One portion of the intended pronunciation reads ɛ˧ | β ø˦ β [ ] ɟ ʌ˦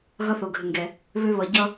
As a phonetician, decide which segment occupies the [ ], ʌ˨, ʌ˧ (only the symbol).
ʌ˧